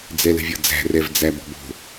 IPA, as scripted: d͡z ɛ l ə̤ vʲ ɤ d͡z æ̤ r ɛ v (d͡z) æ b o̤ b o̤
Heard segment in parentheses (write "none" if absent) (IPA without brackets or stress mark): d͡z